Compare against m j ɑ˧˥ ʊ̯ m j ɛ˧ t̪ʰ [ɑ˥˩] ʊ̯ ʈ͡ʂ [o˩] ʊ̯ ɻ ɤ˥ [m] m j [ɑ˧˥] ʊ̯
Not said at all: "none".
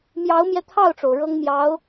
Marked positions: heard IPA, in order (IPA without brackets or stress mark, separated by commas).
ɑ˥˩, o˩, ŋ, ɑ˧˥